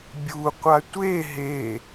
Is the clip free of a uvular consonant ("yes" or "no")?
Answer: no